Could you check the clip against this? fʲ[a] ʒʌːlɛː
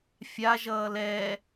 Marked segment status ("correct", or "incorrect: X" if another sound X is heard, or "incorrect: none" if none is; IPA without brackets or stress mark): correct